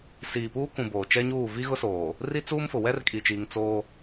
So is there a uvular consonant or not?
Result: no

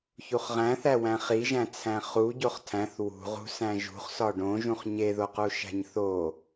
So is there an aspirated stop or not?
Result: yes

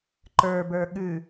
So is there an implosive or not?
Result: yes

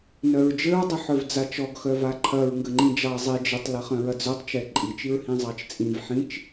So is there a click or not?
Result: yes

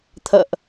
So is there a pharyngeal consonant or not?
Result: no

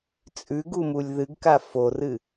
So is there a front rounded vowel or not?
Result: no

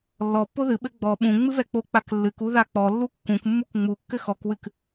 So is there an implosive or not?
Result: yes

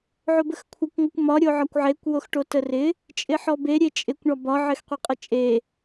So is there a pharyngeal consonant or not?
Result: yes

